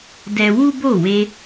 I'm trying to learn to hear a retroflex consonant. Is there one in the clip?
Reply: no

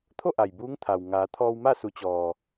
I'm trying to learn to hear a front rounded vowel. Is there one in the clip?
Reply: no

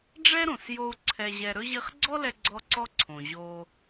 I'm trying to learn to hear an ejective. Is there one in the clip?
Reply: no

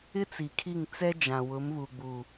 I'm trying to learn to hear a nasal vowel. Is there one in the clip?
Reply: yes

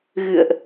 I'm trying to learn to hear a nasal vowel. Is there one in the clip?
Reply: no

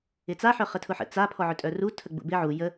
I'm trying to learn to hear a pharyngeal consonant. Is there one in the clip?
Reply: yes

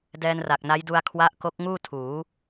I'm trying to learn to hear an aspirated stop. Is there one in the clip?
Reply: yes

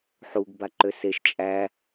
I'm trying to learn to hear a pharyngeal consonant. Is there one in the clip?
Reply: yes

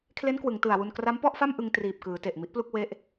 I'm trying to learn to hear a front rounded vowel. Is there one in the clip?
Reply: no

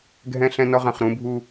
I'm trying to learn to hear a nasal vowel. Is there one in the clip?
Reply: yes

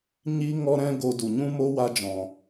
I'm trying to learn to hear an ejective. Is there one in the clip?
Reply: no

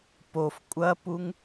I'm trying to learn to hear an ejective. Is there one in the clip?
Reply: yes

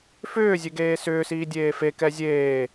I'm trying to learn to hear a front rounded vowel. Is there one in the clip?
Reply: yes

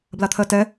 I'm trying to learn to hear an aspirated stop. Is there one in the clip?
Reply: yes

